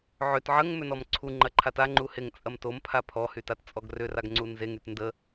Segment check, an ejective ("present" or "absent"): present